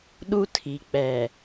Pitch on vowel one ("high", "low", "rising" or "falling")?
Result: high